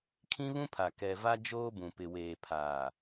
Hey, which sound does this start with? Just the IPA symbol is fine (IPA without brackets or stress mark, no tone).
kʰ